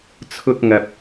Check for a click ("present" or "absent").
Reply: absent